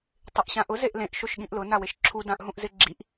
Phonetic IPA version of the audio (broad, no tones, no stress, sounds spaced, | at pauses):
tˤ ɪ ʔ ɕ ã ʔ ʊ z e ʔ l ẽ ʔ ʃ o ʃ ɠ ĩ ʔ l ʊ n a w e ʃ ǁʰ u d ã ʔ ɦ ũ ʔ z ɪ ɡ͡ǁ i ʔ